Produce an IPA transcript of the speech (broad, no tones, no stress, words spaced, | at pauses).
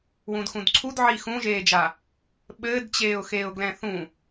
wũdxũdǀʰudʕi xũʒeːd͡ʒa | ɓɘːdt͡ɕeːʊ̯xeːʊ̯ ɡlɛ̃θũ